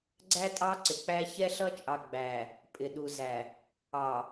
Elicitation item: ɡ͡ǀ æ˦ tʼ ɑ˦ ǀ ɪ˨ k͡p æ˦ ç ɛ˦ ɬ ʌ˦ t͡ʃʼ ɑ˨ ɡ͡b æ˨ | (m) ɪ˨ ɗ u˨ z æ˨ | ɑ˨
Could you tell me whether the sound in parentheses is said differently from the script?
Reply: yes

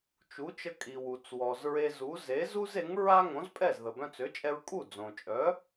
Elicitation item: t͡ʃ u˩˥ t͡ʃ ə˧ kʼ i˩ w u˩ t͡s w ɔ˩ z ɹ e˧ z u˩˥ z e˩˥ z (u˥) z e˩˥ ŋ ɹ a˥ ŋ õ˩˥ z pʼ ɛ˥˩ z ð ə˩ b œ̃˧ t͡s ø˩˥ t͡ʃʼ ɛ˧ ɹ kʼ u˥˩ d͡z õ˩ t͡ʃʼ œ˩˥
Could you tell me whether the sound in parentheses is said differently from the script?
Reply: no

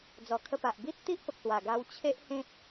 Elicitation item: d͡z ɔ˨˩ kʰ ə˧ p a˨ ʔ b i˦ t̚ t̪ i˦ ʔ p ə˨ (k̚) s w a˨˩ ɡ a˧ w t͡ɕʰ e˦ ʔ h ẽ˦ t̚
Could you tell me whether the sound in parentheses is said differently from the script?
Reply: no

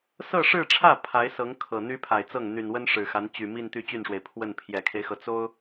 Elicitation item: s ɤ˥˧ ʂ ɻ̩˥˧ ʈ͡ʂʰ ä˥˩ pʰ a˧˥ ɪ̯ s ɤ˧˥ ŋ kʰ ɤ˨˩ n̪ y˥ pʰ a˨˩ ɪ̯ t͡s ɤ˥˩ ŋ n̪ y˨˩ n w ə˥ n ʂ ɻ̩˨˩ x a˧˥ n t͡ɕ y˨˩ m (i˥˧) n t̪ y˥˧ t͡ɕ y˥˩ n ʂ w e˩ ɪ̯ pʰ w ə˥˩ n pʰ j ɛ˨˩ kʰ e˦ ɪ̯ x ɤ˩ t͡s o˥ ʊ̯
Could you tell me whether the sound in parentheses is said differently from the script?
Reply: no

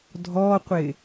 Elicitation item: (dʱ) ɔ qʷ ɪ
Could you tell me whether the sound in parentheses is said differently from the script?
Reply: no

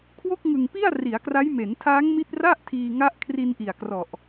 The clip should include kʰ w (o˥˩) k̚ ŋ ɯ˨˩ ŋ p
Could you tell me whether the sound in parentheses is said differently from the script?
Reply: no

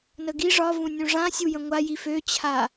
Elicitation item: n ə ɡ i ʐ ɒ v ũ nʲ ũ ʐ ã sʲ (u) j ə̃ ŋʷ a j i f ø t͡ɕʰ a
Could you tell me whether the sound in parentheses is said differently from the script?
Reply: no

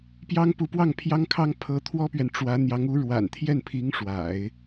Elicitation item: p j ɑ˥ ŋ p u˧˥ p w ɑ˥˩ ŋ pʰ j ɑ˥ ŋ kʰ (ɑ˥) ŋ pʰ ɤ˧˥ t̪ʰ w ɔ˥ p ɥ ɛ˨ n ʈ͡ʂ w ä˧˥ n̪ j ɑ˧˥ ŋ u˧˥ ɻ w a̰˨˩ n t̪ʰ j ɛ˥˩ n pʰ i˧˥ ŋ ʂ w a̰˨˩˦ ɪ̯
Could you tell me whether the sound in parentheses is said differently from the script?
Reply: no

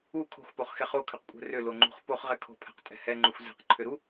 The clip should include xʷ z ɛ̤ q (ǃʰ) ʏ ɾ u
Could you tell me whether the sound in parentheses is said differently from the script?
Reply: no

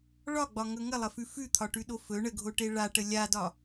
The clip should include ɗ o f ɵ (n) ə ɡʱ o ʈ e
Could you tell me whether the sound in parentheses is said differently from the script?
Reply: yes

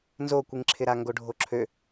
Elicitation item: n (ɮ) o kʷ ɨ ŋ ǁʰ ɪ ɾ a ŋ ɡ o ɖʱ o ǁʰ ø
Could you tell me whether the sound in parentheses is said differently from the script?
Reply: yes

